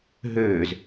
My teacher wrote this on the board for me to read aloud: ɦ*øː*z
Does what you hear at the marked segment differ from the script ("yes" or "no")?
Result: no